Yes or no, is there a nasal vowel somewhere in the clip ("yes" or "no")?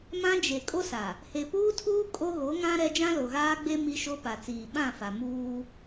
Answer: yes